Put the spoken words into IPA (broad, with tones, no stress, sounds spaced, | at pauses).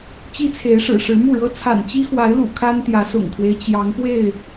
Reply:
t͡ɕ i˦ t͡sʰ e˨˦ ɪ̯ ʂ ɻ̩˨˩ ʂ ɻ̩˨˦ m u˥˨ ɻ ɤ˦ t͡sʰ a̰˨˩ n t͡ɕ i˦ x w a˨˦ ɪ̯ l ṵ˨˩ kʰ a˦ n t̪ j ä˨˦ s ʊ̰˨˩ ŋ kʰ w e˦ ɪ̯ t͡ɕ j ɑ˨˦ ŋ p w e˥˨ ɪ̯